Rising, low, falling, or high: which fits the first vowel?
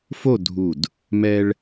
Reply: falling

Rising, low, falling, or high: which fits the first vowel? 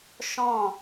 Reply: falling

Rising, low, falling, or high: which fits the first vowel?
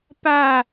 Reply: falling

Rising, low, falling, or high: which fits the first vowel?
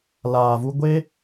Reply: low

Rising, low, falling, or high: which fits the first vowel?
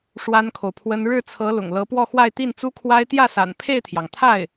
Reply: high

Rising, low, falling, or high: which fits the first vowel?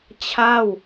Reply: falling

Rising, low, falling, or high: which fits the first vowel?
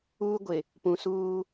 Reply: high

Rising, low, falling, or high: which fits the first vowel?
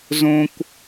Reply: high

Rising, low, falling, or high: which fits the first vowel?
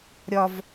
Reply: high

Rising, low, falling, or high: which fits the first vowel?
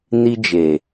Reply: high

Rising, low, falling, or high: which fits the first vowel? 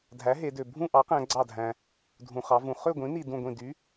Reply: rising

